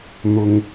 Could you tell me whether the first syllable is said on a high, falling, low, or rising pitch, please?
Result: high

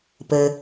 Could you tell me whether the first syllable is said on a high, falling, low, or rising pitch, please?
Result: low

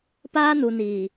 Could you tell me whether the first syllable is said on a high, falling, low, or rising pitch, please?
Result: high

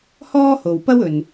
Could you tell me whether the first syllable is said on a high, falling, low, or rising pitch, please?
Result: high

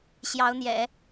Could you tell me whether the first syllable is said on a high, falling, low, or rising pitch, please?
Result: rising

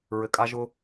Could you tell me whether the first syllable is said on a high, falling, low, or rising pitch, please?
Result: low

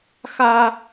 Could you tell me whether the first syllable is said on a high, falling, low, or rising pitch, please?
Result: high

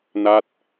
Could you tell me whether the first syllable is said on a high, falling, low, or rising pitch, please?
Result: falling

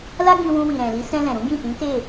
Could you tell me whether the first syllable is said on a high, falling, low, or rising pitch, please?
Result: high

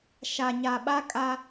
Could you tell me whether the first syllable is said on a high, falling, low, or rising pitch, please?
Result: low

